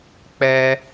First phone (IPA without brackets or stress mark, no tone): k͡p